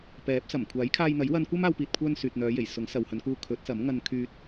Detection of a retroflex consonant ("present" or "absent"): absent